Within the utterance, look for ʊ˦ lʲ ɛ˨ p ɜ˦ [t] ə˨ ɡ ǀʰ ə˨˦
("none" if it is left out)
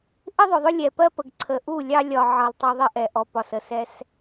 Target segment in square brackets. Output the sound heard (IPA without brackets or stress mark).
p